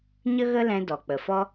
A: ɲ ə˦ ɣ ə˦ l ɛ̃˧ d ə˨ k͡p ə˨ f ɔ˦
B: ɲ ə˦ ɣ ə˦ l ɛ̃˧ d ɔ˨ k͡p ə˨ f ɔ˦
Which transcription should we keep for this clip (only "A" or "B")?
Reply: B